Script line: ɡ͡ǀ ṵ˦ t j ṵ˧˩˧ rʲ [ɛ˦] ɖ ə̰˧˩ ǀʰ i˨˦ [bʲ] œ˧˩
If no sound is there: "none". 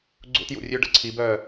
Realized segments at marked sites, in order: ø˦, b

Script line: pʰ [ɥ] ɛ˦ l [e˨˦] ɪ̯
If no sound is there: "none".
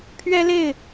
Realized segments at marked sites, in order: ɥ, e˥˨

